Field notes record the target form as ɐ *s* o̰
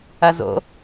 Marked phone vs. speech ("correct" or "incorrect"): incorrect